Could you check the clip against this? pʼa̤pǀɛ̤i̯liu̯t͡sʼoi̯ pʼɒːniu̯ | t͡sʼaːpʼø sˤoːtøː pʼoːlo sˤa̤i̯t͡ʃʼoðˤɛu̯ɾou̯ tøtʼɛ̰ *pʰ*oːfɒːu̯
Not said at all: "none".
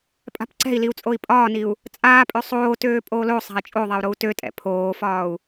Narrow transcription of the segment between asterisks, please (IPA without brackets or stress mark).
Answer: pʰ